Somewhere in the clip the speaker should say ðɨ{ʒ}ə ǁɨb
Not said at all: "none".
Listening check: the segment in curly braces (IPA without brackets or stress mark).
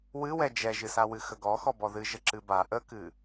ʒ